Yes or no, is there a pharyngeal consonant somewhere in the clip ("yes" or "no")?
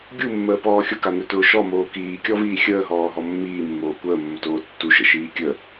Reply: no